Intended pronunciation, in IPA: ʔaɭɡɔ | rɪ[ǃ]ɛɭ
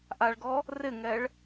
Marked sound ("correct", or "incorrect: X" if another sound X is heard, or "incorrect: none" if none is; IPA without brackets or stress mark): incorrect: ŋ